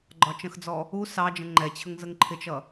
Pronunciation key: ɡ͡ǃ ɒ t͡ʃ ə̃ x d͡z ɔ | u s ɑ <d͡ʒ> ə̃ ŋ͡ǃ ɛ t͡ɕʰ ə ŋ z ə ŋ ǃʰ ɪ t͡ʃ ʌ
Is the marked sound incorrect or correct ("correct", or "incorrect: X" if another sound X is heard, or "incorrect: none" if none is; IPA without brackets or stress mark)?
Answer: correct